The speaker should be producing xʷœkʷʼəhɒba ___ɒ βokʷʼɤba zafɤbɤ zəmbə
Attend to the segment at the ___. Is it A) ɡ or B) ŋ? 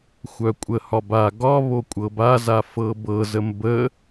A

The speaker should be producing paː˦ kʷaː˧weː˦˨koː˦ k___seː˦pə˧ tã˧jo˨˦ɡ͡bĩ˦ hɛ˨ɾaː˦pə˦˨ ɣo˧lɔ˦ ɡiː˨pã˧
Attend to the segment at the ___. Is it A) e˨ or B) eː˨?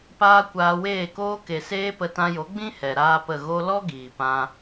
A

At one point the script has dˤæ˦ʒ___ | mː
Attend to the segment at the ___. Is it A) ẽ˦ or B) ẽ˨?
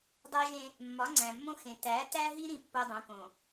A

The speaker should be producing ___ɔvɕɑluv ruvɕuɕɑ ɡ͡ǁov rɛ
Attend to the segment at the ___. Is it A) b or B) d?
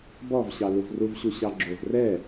A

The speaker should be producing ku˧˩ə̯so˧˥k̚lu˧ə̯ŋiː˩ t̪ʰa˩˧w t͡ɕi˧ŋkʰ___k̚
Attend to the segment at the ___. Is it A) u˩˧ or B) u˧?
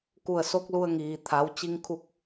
B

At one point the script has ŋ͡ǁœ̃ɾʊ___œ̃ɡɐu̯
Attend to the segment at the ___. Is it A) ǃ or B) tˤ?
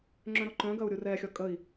A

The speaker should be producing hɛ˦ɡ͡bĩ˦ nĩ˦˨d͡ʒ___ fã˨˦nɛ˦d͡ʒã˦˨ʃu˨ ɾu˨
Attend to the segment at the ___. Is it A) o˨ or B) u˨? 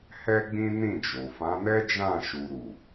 A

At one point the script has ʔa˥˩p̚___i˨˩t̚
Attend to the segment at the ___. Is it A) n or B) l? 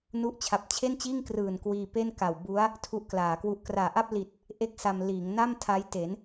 B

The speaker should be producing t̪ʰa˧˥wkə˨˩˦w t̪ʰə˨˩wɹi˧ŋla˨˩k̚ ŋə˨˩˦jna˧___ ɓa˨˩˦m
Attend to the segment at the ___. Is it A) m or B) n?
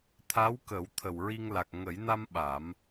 A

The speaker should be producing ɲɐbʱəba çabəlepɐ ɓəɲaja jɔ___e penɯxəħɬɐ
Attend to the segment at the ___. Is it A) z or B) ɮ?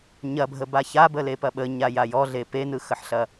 B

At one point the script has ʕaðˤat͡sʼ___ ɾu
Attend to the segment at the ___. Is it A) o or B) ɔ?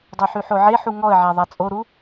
A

